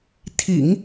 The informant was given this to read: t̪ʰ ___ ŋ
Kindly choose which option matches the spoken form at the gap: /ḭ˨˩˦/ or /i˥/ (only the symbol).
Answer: ḭ˨˩˦